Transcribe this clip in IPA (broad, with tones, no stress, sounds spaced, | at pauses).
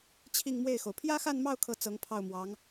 t͡ɕʰ i˥˧ ŋ m w e˥˩ ɪ̯ x o˩ ʊ̯ pʰ j ä˥ x a˥˧ n m ɑ˥˧ ʊ̯ kʰ ɤ˥˩ t͡s ɤ˧˥ ŋ pʰ ɑ˥˩ ʊ̯ m w ɑ˧˥ ŋ